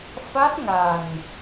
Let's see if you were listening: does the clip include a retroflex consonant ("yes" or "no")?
no